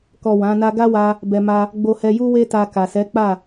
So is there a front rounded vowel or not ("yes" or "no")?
no